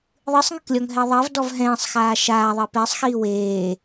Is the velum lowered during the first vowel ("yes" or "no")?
no